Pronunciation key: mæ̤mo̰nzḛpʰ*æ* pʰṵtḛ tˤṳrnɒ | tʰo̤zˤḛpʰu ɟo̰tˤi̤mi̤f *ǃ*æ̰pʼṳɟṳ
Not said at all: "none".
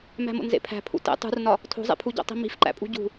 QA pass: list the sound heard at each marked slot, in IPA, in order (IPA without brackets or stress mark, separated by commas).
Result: æ̤, ǃ